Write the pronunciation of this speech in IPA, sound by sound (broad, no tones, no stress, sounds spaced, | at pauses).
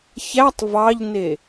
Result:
ç æ tˤ v ɑ ʎ n e